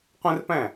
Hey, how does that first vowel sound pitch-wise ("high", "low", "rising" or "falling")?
high